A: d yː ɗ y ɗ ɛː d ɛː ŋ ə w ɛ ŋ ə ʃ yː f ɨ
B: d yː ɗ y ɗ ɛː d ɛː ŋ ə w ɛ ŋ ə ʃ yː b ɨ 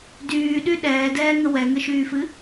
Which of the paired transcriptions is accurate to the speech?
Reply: A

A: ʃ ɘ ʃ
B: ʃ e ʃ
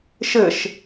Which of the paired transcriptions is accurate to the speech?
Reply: A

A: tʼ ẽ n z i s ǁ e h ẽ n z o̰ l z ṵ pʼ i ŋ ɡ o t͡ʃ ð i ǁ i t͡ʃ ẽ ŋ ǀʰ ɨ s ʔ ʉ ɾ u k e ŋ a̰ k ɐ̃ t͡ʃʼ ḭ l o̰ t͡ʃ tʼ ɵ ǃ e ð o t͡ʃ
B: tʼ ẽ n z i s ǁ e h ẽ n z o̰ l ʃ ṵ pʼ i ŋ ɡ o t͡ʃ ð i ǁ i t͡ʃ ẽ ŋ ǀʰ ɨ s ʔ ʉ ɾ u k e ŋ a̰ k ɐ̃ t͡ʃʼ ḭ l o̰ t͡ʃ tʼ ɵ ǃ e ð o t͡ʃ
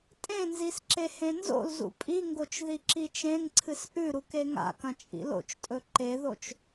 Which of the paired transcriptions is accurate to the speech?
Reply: A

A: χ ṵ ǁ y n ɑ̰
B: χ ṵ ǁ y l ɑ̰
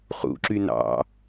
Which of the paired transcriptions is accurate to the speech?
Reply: A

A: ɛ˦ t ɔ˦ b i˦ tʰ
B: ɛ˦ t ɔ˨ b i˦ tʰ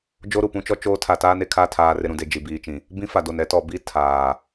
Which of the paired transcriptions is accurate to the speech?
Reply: B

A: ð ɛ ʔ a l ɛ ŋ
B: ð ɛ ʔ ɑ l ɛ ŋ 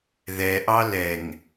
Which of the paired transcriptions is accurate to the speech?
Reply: B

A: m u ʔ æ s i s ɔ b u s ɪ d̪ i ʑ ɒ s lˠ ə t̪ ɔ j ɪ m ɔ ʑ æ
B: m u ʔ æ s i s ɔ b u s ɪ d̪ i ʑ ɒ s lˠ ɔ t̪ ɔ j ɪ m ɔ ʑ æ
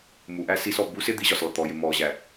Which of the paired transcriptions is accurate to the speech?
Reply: A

